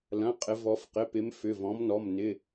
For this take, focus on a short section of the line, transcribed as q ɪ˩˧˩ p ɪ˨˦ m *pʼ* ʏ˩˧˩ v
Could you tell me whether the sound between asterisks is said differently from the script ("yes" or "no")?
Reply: yes